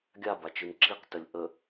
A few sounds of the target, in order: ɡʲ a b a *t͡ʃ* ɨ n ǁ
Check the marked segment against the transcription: correct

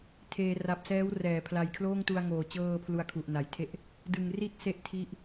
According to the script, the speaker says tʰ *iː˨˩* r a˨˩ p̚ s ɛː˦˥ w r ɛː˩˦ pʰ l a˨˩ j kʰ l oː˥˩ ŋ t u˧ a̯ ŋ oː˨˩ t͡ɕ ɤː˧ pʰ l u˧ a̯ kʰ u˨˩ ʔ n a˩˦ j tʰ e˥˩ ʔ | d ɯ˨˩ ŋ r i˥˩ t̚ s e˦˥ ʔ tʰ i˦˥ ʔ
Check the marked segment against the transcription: incorrect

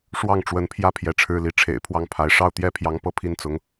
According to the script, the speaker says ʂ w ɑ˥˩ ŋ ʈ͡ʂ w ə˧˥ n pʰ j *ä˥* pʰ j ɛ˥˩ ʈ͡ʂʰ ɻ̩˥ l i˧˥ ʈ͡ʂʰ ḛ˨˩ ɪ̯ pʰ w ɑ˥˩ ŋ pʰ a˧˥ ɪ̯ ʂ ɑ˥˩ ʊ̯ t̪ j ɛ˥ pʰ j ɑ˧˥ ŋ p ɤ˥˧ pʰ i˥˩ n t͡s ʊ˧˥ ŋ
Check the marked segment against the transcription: correct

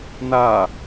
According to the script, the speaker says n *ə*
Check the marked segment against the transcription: incorrect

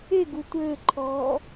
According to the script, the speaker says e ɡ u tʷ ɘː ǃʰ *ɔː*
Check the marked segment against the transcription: correct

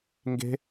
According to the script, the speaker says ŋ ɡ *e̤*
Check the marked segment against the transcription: correct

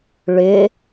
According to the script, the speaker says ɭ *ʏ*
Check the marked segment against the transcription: correct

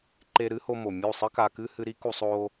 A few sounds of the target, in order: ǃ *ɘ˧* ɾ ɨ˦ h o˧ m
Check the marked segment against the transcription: incorrect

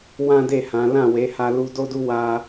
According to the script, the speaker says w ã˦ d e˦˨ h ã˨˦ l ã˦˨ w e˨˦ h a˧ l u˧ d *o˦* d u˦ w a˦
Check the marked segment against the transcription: correct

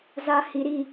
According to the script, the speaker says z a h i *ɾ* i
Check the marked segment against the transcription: correct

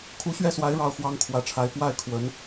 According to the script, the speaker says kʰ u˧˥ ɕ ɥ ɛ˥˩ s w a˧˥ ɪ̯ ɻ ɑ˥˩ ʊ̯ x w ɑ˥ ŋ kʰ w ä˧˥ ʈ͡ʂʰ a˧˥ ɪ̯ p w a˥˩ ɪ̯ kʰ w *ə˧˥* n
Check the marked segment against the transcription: correct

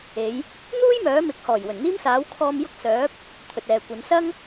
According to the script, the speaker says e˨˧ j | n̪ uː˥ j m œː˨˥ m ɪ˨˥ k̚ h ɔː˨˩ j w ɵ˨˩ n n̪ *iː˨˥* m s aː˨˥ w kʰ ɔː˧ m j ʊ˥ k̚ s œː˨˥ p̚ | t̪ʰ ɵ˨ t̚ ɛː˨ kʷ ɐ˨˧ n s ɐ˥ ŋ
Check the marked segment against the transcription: incorrect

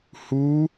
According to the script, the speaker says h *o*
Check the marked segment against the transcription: incorrect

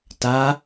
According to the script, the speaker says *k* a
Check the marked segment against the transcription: incorrect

